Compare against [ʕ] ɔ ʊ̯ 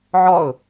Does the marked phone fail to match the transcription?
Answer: no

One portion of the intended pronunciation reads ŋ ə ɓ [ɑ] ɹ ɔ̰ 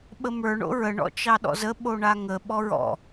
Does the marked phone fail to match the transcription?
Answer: yes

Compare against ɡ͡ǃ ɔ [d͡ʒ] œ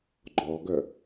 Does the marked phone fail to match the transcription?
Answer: yes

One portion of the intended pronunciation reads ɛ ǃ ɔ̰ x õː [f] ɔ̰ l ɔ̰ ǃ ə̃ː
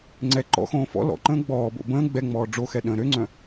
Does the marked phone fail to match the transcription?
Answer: no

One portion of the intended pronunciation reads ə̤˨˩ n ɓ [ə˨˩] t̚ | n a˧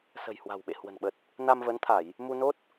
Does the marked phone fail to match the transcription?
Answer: no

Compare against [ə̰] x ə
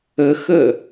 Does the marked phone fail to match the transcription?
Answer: yes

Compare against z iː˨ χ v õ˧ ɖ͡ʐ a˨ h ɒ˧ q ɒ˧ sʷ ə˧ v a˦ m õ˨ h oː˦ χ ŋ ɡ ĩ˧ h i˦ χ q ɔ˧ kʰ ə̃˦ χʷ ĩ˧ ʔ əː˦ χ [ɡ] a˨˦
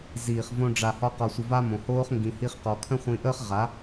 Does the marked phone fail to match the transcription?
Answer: yes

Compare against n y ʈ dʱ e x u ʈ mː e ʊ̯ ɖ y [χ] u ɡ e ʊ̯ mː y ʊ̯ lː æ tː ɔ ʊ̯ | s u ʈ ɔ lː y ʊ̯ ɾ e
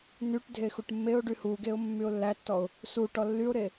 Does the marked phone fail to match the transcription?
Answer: yes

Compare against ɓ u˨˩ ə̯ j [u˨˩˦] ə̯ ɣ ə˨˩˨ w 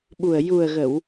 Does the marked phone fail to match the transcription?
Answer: yes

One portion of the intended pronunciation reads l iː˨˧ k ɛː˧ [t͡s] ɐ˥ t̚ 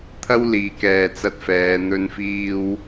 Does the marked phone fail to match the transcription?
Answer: no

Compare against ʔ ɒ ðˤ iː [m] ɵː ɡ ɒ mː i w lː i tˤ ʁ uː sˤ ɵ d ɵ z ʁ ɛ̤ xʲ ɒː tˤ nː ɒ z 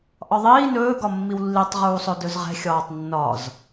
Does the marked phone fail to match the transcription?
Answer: yes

